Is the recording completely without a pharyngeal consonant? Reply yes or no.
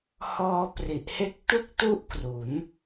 yes